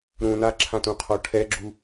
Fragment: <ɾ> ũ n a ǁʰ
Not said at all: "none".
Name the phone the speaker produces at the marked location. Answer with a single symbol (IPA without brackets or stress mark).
ɾ